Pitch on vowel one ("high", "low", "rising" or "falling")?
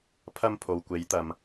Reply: high